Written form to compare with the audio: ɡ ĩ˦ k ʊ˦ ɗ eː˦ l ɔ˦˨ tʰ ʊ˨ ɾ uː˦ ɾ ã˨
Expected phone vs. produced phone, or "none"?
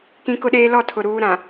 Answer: ɡ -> k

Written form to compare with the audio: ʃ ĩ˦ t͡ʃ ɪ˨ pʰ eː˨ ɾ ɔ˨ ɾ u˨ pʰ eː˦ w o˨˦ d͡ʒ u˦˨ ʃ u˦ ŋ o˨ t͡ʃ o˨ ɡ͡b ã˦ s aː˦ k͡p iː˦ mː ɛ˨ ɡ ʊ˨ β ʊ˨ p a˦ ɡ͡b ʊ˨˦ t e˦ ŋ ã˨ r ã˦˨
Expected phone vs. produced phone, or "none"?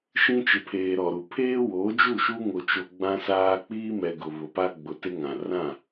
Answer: mː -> m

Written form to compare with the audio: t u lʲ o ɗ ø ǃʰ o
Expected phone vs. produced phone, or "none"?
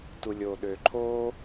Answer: none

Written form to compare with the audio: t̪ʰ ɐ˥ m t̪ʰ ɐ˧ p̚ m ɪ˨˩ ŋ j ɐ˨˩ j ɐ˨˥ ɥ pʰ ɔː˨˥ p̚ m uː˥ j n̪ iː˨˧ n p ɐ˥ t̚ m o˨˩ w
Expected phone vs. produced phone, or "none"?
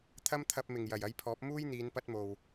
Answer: ɥ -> j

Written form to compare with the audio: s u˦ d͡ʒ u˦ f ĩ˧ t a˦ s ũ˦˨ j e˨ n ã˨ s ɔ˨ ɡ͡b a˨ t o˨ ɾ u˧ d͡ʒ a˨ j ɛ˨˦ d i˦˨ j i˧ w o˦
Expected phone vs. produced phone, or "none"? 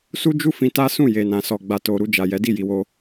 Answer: none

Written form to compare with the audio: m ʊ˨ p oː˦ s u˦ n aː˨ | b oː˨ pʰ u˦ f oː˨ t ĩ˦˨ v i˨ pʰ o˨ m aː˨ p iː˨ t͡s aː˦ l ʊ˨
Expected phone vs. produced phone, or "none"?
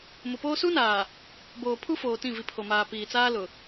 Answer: none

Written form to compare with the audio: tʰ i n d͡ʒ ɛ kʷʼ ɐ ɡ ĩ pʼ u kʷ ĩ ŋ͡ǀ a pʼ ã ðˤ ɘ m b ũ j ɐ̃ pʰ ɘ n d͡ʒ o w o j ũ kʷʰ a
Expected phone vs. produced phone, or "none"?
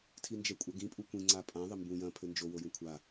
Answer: none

